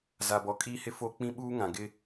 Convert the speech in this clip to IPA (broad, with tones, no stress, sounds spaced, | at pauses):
z a˨ b ɔ˨ kʼ iː˦ h ɪ˦ f o˦ k͡p ĩ˦ ɓ uː˦ ŋ ã˨ ɡ ɪ˦